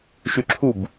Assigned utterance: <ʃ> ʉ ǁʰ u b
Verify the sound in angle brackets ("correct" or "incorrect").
correct